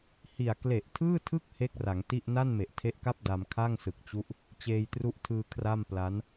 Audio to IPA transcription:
hi˨˩a̯ kle˨˩ʔtʰɯː˥˩tʰɯ˥˩k̚ he˥˩k̚ra˩˦ŋti˥˩ʔ na˥˩nme˨˩ʔtʰe˦˥ʔka˥˩p̚ da˧mkʰa˥˩ŋsɯ˨˩k̚t͡ɕu˦˥ʔ | t͡ɕeː˧jtru˦˥ʔtʰɯː˧ kʰra˥˩mpla˦˥n

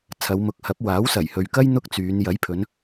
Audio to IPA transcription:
t͡sʰɐ˨˧wmʊ˨˥k̚hɐ˨˥p̚ waː˨˥wsɐ˨˩jhɵ˨ɥkɐ˥j n̪ʊ˥k̚t͡syː˨˧n jɐ˨˥jpʰɵ˨˧n

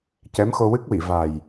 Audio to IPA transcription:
cɛ˧˥mxo˧wɨ˦˥k̚wi˨˩˨ va˨˩j

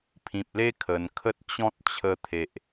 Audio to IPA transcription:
pʰĩ˨p̚le˦ kʰə˧n kʰə˦t̚t͡ɕɔ̃˦t̚ t͡ɕʰə˧t̪ʰe˨ʔ

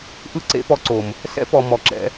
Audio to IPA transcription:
ʔɯ˦ǀḛ˦pɔ˧ ǀo˨m | sɛ̰˦pɔ˨ mɔ˨ǁɛ̰˧

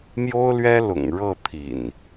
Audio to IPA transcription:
mjo˦ʊ̯lɥɛ˦lʊ̰˨˩ŋ ɻɤ˥˨t̪ʰḭ˨˩n

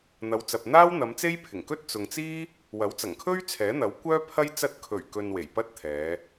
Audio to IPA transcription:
n̪ɐ˨˧wt͡sɐ˨p̚n̪aː˥wn̪ɐ˨˧m t͡se˥jpʰɪ˨˩ŋkɵ˥t̚ t͡sʊ˨ŋt͡siː˥ | wɐ˨˥wt͡sɐ˨˩ŋkʰɵ˥ɥ t͡sʰɛː˨˥n̪ɐ˨˥wkʷœː˥pʰɐ˥j t͡sɐ˧t̚kʰɵ˨˩ɥ kɵ˧nwe˨˩jpɐ˥t̚t̪ʰɛː˨˧

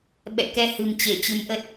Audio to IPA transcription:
ɓɛ̰˧˨kɛ˧ hɨ̤˨˩mt͡ɕe˧˩ t͡ɕɨ˨˦mʔə˦˥t̚

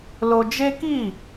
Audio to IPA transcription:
lo˧d͡ʒe˦ki˦˨

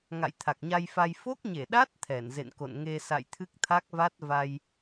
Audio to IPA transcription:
ŋa̰˧˨jt̪ʰa˨˩k̚ɲa˧jfa˧j fo˦˥k̚ɲe˧˩ɗa˦˥t̚ t̪ʰɛ˧˩nzḛ˧˨nko̰˧˨n ŋe˧ sa̰˧˨jt̪ʰɨ˦˥k̚t̪ʰa˦˥k̚va˦˥t̚ va˧j

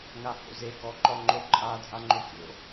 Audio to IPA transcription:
ŋaho̰ze ɡɔǃɔŋ͡ǃoǃʼa dʱaŋ͡ǃokʲo̰

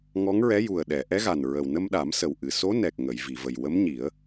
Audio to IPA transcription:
ŋɔ˧˥ŋɹɛ˧˥ ju˨˩ə̯ɗɛ˨˩˨ʔɛ˧˥ɣa˨˩n ɹə˨˩wnə˧mɗa˨˩˦msə˨˩w ʔɨ˨˩˨so˧˥nɛ˨˩k̚ ŋə˨˩˨jvi˨˩˨və˨˩j wə˧˥mɲi˨˩˦ə̯

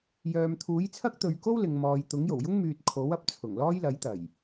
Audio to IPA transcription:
jœː˨m t̪ʰuː˨˥jt͡sʰɐ˥k̚t̪ɵ˨˧ɥ ko˥wlɪ˨ŋ mɔː˨jt̪ʊ˨˥ŋjo˨˩w jʊ˥ŋmyː˨t̚ kʰo˨˥w ɐ˨˥p̚t͡sʰʊ˨˩ŋ lɔː˥jlɐ˨˥jt̪ɐ˨˩j

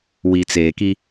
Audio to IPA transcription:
wi˨t͡seː˨ki˦

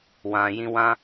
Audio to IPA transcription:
wã˨ jĩ˧wã˦

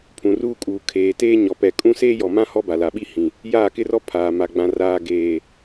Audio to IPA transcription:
pʰũ˨ruː˦kʼuː˨ kʰeː˨teː˦ɲɔ˨pɛ˨ kʼũ˦ seː˦jɔ˨mã˦ hɔ˦ba˨ la˨ɓi˦hĩ˨ | jaː˦˨kɪ˦rɔ˦ pʰaː˨ma˨ ɡ͡bã˨raː˨ɡeː˨

